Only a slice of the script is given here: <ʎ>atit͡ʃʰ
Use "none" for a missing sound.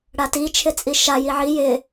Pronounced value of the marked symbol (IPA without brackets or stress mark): ɽ